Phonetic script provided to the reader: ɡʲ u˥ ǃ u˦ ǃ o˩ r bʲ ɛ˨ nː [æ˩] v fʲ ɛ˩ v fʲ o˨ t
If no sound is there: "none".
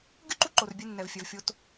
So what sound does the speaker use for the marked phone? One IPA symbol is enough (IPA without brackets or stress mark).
ɛ˩